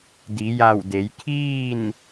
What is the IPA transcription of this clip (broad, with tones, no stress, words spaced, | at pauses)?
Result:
di˩˧ja˧˩wde˩˧j kʰiː˥˨n